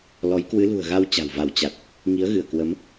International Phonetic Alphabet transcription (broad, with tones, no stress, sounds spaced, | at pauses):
l ɔ˨˦ j k w ɨ˨˦ l ṳ˨˩ ə̯ ɣ a˧ w t͡ɕ a̤˨˩ w v a˧˩ w t͡ɕ a˨˩ t̚ | ŋ i˨˦ ə̯ ɣ ɨ˧˩ ə̯ k w ə˨˦ m